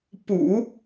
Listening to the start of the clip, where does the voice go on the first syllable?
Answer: low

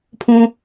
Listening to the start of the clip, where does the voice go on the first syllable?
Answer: high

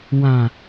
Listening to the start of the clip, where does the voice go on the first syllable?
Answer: low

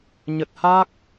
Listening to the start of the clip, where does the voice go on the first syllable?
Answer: low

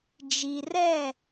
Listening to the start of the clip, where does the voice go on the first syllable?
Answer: low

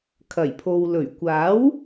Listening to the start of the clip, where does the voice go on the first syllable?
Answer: low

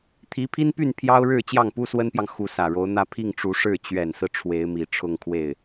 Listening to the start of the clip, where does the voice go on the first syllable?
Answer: rising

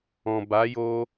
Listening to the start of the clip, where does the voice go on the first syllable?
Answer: low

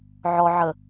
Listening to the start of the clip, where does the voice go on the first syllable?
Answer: low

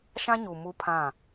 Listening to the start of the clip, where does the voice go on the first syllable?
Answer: high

